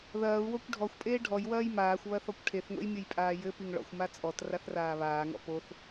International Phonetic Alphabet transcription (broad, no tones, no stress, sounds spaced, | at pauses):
ð ɐː u̯ w o kʷ ɖʱ ɔ xʷ pʼ eː ɖʱ ɔ j w ɐː j m aː xʷ β ɐ θ ɔ kʷ ʈʰ e θ ŋʷ ḛ j mʲ ɨ j pʼ aː j ɘ p i ŋ ɭ ɔ̰ xʷ m a t͡sʼ ɔ t r a θ r aː β aː ŋ ɔ̰ p o θ